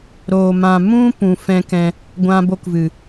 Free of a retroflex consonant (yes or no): yes